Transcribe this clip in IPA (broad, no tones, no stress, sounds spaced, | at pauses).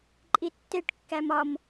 ǃʼ i tː e ʈ kː æ m ɒ m